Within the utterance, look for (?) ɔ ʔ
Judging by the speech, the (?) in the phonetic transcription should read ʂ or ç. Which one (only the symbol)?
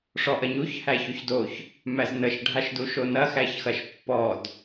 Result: ʂ